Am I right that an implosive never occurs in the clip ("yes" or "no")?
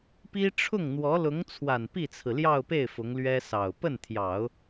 yes